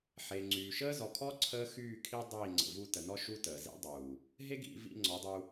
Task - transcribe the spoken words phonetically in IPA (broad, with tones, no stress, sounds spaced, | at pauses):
ħ e˨ ŋ͡ǀ yː˨ ʃ əː˦ z ɔ˨ kʰ ɔ˦ ǀʰ əː˦ x yː˦˨ kʰ i˦ dˤ iː˦˨ ŋ͡ǀ ə̰˨ v u˧ t ə˨ n ɔ˦ ʃ u˦ t əː˨ z ḭ˦ dˤ uː˨ | ɦ e˦ ɡ ḭ˧ v ḭ˧ ŋ͡ǀ ɔ˨˦ dˤ u˧